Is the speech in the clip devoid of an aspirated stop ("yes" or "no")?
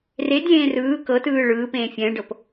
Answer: yes